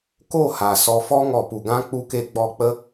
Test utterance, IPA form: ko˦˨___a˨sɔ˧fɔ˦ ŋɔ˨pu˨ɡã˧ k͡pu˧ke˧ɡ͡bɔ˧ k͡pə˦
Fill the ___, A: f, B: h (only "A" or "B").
B